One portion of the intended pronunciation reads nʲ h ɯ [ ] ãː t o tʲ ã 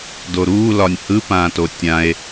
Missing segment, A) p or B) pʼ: A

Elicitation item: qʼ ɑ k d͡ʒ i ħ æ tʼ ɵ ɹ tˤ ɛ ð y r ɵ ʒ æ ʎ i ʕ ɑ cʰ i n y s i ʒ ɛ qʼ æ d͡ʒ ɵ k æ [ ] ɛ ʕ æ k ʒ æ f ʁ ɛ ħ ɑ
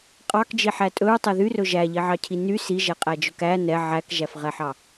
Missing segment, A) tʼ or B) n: B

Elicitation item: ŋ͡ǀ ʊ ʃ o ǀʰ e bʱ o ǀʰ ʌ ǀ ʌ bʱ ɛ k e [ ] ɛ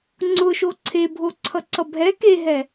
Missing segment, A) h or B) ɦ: B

